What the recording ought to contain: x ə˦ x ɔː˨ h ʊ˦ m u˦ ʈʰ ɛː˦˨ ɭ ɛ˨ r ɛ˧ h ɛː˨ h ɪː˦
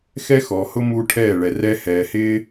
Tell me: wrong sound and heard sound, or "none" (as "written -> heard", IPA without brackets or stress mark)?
ə˦ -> ɛ˦